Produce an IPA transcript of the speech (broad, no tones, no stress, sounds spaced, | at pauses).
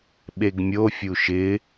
ɓ e ɡ mʲ o fʲ u ʃ ɪ